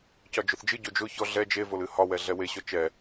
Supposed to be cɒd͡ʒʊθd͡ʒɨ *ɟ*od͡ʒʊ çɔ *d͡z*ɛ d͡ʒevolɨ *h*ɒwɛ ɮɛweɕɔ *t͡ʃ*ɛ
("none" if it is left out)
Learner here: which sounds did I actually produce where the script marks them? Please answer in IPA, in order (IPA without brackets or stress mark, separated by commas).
ɟ, ɮ, h, t͡ʃ